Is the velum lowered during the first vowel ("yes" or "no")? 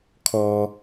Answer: no